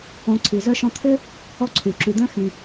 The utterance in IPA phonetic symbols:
õ˨ ǀʰ i˩ z œ˦ ʃ ɔ̃˦ t̪ʰ ʏ˥ | ɔ˦ ǀʰ y˩ ǁ y˨ d̪ œ̃˥ x ĩ˨

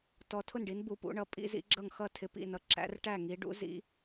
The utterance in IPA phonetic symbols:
t ɔ˨˦ tʰ ʊ˥˩ n ɖ i˨˦ n b u˨˦ p ṵ˨˦ ɳ ʌ˨˦ pʼ ḭ˨˦ z ḭ˨˦ ɡ͡ǁ ʌ˥˩ ŋ x ʌ˥˩ tʰ ɪ˨˦ p ḭ˥˩ n ʌ˨˦ ǁ æ̰˨˦ r ʈ æ˥˩ ŋ i˨˦ ɖ ṵ˨˦ z ḭ˨˦

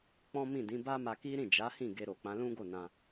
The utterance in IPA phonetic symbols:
k͡p ɔ̃˦ m ĩ˦˨ d ĩ˨˦ b a˦ m a˧ k i˦ ɾ ĩ˦˨ d͡ʒ a˨˦ h ĩ˦˨ ɡ e˧ ɾ o˨ k͡p ã˨˦ l ũ˦ ɡ o˦˨ n ã˧

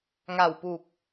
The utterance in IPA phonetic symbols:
ŋ a˨˩ w p u˨˩ k̚

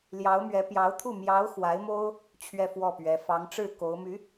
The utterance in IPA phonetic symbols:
l j ɑ˧˥ ʊ̯ m ɥ ɛ˧˥ p j ɑ˧˥ ʊ̯ t̪ʰ u˥˩ m j ɑ˧˥ ʊ̯ x w a˧˥ ɪ̯ m o˥ ʊ̯ | t͡ɕʰ ɥ ɛ˥˧ f w ɔ˥˩ p ɥ ɛ˧˥ f ɑ˧˥ ŋ ʈ͡ʂ ɻ̩˥˩ k o˧˥ ʊ̯ m y˧˥

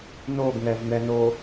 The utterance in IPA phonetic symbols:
n o ɡ ŋ ɛ v n̪ ɛ n o

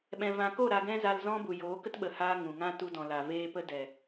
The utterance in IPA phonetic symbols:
ɓ ɛ̃˨ v ã˨ k o˦˨ ɾ a˧ ɡ ɛ̃˦ z a˧ l z ɔ̃˦ b u˨ j oː˨˦ k ə˦ t ɓ ə˨ h aː˧ ŋ ũ˨ ŋ ã˦ t u˧ d ɔ̃˨ l a˨ v eː˧ p ə˦ d ɛ˨

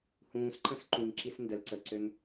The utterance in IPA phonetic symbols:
h ũː s ǃ ə̃ s ǃ ũ ŋ ǁ i s n d ə l ǀ ə ǀ ø ŋ

